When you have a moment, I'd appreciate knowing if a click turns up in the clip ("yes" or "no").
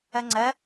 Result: yes